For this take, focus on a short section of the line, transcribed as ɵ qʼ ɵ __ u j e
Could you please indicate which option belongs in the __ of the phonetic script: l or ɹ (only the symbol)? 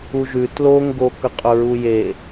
ɹ